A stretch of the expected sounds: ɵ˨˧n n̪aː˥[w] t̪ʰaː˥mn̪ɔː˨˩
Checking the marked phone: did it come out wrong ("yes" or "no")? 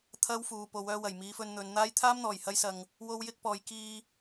yes